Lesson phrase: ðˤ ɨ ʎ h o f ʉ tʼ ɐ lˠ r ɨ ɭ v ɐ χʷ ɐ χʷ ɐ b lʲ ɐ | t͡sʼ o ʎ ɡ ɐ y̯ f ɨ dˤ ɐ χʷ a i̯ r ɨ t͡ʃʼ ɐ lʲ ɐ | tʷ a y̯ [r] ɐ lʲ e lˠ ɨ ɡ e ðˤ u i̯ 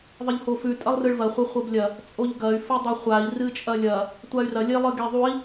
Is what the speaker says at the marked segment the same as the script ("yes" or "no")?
yes